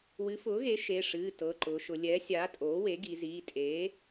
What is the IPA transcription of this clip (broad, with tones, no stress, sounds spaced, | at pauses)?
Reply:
w ɨ˩˥ f ʊː˩˥ ɣ e˩˥ ʃ e˩˧˩ ʂ ɨː˩˧˩ t ɤ˩˧˩ ǃ ʊː˩˧ ʃ ʊ˩˧ lʲ ɛ˩˥ sʲ aː˩˥ tʼ oː˩˥ w e˩˥ ɡ i˩˧ z iː˩˧˩ tʼ eː˩˥